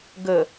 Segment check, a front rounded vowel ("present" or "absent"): absent